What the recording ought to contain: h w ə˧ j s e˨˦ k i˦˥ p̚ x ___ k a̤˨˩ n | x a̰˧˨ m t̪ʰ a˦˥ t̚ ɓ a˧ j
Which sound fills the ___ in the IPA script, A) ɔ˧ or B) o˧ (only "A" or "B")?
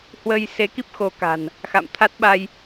B